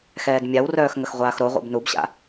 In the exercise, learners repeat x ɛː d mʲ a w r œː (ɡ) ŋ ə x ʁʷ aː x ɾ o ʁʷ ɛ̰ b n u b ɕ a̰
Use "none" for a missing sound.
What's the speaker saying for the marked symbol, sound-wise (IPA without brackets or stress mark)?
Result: x